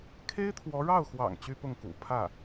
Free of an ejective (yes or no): yes